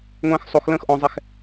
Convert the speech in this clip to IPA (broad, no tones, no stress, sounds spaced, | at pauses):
ŋʷ ɛ̃ː x sˤ o x l ə̃ː x ʔ ɔ̃ zˤ ɛ x